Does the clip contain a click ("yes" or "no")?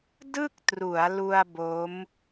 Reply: no